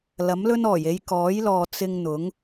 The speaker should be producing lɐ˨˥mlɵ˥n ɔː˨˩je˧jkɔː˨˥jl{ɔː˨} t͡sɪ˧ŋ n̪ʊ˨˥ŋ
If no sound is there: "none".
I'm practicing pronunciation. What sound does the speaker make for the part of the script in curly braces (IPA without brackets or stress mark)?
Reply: ɔː˨